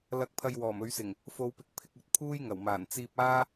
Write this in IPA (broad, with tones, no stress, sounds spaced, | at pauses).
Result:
l ɐ˨˥ k̚ pʰ ɐ˨ j w ɔː˨˩ m ɵ˨˧ ɥ s ɪ˨˩ ŋ | f o˨˧ w p ɪ˨˥ k̚ pʰ ɪ˧ k̚ ɵ˨ t̚ pʰ uː˥ j ŋ ɐ˨˩ w m aː˨˩ n t͡s iː˧ p̚ aː˥